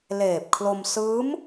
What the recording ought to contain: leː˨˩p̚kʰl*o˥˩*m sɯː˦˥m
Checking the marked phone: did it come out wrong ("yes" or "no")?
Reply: yes